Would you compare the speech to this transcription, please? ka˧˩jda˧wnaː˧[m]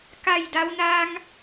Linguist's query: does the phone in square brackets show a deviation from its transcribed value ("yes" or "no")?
yes